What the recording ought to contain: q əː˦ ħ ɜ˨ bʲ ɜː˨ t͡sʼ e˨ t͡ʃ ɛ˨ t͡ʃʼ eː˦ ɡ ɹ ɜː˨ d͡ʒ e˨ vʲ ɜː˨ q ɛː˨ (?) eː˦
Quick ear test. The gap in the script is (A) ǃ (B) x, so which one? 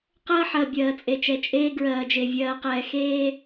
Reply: B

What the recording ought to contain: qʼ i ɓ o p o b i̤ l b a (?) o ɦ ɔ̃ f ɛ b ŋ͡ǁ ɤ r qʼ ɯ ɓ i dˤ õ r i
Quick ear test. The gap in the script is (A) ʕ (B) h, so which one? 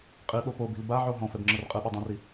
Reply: A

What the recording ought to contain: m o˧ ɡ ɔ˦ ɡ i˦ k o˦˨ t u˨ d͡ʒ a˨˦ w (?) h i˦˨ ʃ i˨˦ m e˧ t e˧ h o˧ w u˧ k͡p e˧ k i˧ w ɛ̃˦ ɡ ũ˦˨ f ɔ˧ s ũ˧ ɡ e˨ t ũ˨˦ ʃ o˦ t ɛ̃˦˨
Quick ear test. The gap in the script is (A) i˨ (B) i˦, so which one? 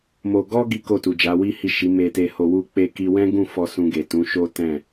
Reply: B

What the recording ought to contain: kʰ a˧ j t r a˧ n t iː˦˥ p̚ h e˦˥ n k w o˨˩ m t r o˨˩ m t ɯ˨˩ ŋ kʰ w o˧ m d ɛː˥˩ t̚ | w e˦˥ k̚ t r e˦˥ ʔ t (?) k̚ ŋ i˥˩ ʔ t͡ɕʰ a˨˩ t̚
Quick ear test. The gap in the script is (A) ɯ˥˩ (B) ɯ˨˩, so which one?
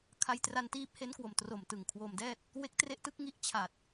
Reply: A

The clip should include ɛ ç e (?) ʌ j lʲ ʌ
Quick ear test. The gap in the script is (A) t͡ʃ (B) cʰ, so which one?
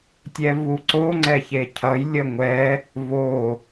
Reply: B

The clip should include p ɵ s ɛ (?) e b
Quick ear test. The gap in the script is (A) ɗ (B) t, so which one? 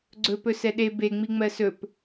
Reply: A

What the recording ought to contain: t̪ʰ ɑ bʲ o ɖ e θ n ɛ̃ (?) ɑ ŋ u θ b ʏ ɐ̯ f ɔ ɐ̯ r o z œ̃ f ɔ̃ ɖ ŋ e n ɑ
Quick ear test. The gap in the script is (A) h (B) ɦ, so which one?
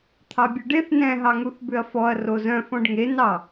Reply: B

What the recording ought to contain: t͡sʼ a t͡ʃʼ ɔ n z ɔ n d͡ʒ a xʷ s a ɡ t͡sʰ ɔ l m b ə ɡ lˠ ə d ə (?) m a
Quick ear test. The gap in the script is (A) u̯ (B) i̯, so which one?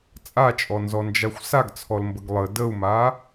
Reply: A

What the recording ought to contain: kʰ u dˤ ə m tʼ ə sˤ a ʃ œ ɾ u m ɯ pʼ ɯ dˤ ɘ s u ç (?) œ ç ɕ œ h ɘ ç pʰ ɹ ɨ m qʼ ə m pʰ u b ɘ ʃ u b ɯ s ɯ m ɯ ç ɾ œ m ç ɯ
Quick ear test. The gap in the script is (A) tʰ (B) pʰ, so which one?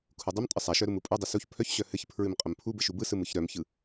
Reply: B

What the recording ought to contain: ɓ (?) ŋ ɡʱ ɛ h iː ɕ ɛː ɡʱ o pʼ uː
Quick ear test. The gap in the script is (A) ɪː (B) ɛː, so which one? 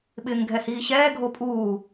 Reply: A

